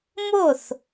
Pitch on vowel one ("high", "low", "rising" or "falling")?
falling